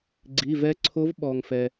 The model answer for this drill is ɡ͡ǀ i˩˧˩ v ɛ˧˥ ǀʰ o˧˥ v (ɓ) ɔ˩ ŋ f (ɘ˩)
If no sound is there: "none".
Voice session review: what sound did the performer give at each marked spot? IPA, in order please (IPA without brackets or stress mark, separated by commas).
ɓ, ɛ˩